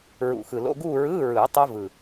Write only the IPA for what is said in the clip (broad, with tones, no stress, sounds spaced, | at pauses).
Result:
ɹ ṵ˨˩ x ɯ˨˩ l o̰˧˥˧ ɡ uː˥˧ ɹ ɯː˧˥˧ ɹ ɯː˨˩˦ tˤ o˦˥ v ɯ˨˩